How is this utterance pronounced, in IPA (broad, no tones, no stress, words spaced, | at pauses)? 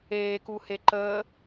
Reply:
eːkuhe ǃəː